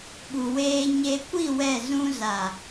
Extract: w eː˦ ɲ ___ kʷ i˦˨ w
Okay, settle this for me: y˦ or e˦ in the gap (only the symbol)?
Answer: e˦